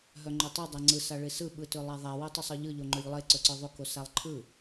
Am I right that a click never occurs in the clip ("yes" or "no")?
no